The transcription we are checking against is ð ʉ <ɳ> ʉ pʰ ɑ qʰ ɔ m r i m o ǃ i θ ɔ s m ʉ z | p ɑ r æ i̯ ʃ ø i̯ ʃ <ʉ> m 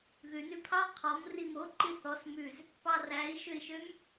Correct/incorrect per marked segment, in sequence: incorrect: n, incorrect: ø

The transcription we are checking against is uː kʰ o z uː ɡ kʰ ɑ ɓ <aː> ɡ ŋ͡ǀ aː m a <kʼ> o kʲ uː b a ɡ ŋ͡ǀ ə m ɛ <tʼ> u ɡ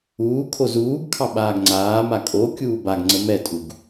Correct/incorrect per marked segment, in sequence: correct, correct, correct

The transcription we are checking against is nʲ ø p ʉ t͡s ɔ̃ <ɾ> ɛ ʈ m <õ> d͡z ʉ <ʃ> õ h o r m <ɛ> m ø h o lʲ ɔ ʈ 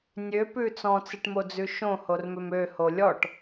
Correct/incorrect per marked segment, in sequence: incorrect: t͡s, incorrect: o, correct, incorrect: ʏ

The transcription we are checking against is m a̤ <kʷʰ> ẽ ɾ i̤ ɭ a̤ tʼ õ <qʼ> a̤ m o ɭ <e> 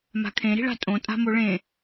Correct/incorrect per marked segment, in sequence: incorrect: kʰ, incorrect: tʼ, incorrect: ẽ

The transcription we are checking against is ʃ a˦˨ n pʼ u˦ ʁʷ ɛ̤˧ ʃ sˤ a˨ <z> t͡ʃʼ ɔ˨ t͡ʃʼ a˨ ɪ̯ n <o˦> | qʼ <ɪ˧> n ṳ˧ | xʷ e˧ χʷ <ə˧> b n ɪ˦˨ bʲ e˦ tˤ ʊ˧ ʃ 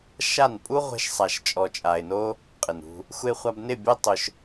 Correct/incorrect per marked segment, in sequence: incorrect: ʃ, correct, incorrect: ɪ˨, incorrect: a˧

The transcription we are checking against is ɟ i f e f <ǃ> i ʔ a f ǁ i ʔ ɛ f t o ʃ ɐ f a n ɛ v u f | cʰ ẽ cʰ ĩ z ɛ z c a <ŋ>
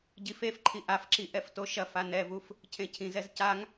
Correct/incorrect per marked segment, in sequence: incorrect: ǃʰ, correct

